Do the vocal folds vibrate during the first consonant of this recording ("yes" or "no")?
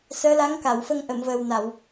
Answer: no